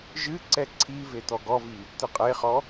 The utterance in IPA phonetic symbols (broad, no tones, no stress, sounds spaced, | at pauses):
ʒ ɨ ǀ ɛ ǀʰ i v e t̪ ɔ ɡ ɔ v i | t̪ ɨ qʼ e χ ɔ